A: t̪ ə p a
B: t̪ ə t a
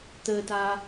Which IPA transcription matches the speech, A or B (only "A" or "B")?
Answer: B